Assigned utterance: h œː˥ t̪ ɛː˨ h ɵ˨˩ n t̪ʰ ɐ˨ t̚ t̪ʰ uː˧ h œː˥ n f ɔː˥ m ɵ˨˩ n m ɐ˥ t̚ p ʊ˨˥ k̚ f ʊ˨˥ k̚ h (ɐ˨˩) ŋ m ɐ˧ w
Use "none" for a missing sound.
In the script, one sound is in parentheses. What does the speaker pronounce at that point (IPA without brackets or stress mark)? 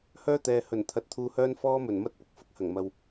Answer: ɐ˨˩